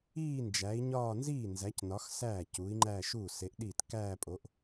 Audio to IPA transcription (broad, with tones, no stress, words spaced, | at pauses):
iː˥˧ nd͡ʒæ˨˥i̯ɲɒː˥˧ nziː˥˩ nzæ˨˥cnɒ˨˥x sæː˥˩ cuː˨˥i̯ŋ͡ǃæː˥˧ ʃuː˥˩se˨˥ʔɗiː˥˩t kæː˥˧pʼo˨˥ʔ